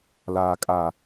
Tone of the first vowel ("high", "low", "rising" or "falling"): low